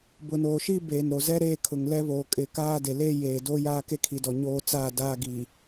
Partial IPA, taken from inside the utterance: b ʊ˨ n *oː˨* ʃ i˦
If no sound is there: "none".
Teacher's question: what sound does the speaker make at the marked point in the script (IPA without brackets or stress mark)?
oː˨